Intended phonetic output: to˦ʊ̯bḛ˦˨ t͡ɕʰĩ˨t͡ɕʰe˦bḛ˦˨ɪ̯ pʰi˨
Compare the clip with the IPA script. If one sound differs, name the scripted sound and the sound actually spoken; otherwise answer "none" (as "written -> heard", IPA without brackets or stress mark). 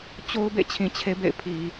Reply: t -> t͡ɕ